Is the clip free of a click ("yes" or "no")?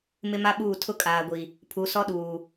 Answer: yes